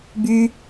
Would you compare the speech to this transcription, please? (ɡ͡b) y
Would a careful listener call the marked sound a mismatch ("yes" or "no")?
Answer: yes